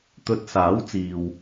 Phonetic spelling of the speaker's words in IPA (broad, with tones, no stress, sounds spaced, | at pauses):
t̪ ɵ˧ t̚ s aː˨˥ w t͡s iː˨ w